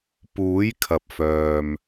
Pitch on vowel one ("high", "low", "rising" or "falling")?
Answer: rising